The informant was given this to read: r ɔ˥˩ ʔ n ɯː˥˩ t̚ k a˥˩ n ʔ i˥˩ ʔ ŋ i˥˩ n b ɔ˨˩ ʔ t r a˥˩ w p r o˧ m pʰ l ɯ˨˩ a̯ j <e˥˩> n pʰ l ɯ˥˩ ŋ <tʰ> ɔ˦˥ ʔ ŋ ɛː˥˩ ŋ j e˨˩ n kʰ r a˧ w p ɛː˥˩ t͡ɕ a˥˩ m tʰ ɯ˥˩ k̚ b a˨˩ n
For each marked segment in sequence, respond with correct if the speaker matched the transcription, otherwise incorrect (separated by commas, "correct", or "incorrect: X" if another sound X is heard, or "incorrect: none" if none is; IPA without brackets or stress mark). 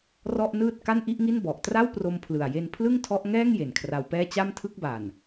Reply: incorrect: e˧, correct